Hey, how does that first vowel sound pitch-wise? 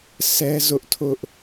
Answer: high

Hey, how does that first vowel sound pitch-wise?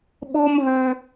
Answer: high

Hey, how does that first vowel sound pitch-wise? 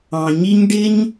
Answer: low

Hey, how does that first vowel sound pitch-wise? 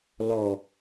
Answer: low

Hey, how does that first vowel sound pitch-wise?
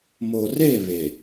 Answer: low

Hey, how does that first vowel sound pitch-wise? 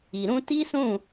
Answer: low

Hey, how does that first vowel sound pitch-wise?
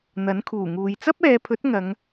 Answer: rising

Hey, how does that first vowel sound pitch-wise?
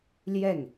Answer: falling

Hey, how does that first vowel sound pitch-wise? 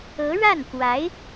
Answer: rising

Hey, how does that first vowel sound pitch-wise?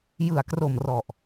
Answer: low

